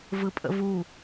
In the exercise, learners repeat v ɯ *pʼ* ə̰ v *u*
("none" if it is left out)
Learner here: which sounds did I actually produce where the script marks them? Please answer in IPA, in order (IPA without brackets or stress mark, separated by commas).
pʼ, u